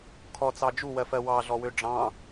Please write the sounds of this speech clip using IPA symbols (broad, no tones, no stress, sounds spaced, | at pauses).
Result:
kʰ ɔ t͡s ɑ d͡ʒ u w ɜ f ɜ w ɑ ɮ ɔ w ø ɖ͡ʐ ɑ̃